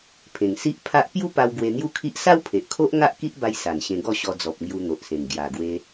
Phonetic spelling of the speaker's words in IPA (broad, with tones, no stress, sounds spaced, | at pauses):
pʰ ẽ˨˩ ŋ s i˦ ʔ pʰ a˦ ʔ p j u˦ p a˧ w ɡ w e˧ n̪ j u˦ kʰ i˦ ʔ s a˦ w pʰ e˨ ʔ kʰ o˦ ʔ ŋ a˦ ʔ k i˦ ʔ b a˧ j s a˨˩ n ɕ ẽ˧ ɡ ɔ˥˧ ɕ ɔ˧ d͡z ɔ˨ p̚ ŋ j u˧ n̪ o˨ ʔ s ẽ˨˩ ŋ ɡ j a˨˩ ɡ w e˧